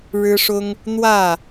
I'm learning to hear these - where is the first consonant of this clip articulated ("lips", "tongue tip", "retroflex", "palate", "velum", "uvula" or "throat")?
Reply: retroflex